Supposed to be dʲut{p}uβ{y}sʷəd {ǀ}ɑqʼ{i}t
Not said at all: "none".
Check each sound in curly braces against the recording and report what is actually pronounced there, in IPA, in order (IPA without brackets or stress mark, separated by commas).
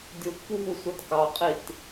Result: p, u, k, i